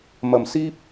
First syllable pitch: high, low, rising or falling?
low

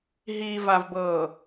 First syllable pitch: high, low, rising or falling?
low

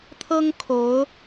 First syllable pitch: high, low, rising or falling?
high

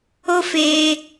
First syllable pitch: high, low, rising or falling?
high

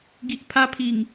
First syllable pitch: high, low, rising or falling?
low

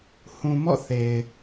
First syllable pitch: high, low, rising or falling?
low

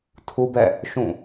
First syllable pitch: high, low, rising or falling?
high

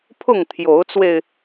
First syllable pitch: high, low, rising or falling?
falling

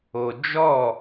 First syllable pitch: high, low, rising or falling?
low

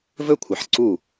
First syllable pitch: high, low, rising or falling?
high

